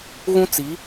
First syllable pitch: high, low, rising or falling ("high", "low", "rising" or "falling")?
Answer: high